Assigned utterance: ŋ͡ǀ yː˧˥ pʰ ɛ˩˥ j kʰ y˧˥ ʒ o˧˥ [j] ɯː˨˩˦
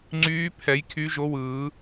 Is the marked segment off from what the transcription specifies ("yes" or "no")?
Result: yes